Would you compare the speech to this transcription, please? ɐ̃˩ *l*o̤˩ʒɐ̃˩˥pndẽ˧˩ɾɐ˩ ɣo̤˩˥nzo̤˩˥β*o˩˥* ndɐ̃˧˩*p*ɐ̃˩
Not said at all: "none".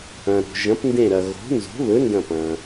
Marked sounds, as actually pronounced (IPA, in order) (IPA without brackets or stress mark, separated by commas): ɾ, ɵ˩˥, p